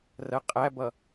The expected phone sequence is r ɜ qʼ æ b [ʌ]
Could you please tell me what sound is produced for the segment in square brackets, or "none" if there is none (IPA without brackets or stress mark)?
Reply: ʌ